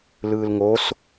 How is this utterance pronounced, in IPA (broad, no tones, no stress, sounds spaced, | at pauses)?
l ɯː l ŋ o s